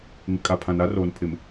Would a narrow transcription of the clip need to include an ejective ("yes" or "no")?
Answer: yes